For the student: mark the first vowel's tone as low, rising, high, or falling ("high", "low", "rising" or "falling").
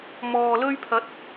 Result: low